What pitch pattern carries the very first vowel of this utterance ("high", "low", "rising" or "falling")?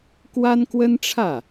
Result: high